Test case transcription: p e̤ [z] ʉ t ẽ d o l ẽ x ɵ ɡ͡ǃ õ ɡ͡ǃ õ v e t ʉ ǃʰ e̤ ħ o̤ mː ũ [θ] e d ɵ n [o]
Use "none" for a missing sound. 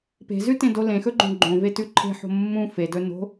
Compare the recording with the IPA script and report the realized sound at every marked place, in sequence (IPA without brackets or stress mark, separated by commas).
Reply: z, f, o̤